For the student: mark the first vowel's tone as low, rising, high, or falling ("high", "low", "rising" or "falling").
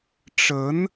rising